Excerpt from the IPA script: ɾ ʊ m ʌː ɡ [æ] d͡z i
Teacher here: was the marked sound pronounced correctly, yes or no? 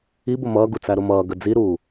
no